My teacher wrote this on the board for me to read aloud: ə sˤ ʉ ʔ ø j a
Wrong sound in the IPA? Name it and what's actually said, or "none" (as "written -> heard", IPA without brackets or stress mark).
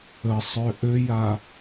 ʉ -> ø